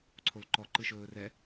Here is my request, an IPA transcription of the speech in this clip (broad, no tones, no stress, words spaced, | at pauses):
ǀʰolǃɔ ǃɯʃɵːrɛ